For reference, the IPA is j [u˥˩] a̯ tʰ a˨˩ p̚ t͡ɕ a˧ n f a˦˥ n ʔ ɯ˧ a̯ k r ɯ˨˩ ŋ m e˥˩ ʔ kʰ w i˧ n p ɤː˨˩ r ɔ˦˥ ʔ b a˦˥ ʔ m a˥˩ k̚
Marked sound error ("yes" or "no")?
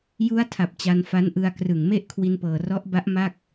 yes